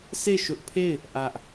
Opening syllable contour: falling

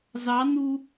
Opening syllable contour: rising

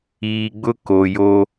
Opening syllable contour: low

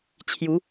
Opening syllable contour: rising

